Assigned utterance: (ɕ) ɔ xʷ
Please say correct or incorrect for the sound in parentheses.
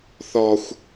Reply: incorrect